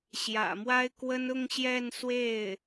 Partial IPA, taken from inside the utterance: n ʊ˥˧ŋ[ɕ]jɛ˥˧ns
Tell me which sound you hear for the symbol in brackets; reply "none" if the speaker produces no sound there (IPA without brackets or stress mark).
ɕ